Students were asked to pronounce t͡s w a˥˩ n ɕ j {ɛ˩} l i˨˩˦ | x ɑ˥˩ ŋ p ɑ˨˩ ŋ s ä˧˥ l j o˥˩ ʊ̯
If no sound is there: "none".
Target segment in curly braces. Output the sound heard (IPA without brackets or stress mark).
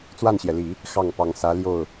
ɛ˩